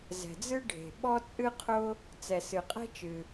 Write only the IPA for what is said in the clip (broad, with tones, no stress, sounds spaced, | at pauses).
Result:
z ɛ̤˩ d͡z ɨ˥ ɖʱ e̤˩ ɓ ɔ˥ t͡sʼ ɨ˥ qʰ ʊ˥ | t͡s ɛ˩ s ɨ˩ qʼ ɛ̤˥ t͡ʃ ɨ˩